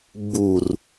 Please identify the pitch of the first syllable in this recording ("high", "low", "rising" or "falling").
low